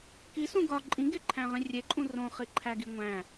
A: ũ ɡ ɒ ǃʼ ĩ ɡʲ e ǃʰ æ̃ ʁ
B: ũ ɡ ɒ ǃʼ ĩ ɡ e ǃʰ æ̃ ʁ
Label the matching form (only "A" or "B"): B